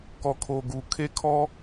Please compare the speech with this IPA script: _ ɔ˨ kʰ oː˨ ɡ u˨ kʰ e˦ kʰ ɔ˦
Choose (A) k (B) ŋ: A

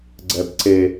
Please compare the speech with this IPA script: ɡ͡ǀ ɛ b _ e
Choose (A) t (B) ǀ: B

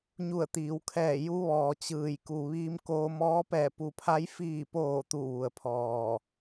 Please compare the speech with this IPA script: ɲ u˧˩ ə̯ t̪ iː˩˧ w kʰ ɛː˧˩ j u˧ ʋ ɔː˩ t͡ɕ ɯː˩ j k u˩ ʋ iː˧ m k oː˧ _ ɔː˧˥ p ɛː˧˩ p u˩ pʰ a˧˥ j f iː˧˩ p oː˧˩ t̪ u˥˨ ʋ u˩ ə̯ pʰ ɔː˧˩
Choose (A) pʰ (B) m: B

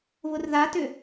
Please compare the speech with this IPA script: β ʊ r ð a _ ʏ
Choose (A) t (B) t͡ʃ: A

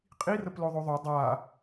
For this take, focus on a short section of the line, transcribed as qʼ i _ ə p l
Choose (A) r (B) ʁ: A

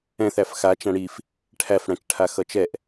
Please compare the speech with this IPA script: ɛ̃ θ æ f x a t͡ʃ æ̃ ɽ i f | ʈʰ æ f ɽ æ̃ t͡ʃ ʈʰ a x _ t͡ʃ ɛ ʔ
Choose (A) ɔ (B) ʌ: B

